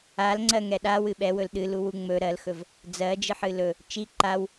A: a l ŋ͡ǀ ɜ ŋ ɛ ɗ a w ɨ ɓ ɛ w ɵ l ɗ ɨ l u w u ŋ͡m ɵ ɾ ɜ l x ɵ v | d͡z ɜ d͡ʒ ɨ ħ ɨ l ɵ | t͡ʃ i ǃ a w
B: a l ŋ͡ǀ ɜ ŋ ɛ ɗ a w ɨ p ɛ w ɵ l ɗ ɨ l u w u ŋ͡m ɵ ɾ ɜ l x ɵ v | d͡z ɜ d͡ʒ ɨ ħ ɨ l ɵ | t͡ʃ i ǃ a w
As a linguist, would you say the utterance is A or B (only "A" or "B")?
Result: A